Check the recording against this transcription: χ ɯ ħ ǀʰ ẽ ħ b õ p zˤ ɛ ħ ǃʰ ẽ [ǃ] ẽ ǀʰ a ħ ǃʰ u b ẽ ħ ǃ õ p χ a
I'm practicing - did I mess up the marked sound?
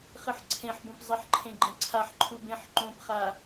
yes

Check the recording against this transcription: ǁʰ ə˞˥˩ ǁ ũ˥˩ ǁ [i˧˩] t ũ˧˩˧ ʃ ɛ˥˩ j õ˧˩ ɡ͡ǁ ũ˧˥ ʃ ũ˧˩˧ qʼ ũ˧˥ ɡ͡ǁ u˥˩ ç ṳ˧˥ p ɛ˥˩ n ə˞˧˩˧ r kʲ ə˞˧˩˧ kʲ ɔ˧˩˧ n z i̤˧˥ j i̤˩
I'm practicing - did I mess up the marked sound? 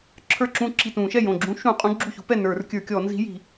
no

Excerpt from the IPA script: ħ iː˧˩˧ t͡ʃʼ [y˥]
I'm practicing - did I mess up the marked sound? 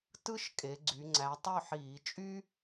no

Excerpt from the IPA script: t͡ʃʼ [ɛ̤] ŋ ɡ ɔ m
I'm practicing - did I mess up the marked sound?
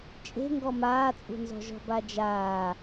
yes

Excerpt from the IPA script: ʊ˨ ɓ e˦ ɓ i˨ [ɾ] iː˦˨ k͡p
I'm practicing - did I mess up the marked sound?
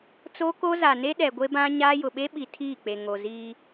yes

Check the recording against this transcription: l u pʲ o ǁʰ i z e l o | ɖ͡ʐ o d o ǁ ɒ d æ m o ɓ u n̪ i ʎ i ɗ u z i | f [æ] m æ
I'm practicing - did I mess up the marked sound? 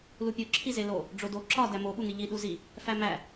no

